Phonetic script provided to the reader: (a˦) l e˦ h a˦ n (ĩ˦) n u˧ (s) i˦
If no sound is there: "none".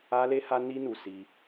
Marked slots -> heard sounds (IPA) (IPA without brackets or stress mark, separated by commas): a˦, i˦, s